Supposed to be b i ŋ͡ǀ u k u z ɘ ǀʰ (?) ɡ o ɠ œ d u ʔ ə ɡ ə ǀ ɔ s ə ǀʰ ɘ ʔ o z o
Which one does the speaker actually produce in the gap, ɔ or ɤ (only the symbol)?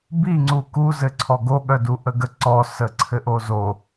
ɔ